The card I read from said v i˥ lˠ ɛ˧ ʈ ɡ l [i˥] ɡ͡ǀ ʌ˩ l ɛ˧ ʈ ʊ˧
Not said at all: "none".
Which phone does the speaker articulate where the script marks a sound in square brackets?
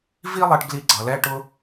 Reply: i˧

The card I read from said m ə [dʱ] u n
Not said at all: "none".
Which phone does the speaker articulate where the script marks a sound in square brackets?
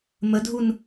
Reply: dʱ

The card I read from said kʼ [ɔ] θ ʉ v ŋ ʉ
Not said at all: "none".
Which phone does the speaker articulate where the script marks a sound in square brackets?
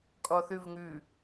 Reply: ɔ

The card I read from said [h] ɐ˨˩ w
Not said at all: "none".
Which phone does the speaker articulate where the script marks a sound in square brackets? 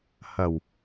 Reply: h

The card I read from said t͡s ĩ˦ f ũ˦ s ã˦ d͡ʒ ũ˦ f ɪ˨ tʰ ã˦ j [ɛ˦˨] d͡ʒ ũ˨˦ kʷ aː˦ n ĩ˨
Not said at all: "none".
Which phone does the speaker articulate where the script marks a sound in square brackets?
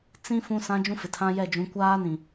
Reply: ɛ˦˨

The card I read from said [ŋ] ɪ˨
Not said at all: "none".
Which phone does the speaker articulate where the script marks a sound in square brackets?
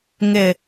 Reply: ŋ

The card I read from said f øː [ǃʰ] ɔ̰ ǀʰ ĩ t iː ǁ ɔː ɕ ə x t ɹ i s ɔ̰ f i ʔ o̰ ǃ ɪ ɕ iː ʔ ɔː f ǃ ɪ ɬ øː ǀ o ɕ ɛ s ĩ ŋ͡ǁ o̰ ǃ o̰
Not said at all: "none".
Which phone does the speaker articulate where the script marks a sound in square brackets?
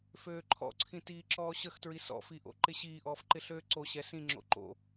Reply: ǃʰ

